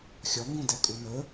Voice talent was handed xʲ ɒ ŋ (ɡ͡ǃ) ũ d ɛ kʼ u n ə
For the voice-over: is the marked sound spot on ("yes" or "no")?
no